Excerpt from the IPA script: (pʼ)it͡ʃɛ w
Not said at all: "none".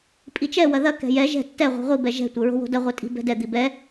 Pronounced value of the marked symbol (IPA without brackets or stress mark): pʼ